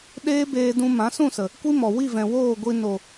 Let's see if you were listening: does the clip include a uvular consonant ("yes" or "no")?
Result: no